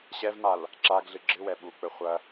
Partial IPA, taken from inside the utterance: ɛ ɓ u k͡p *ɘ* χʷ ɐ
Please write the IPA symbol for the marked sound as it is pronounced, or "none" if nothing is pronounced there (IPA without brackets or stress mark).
ɘ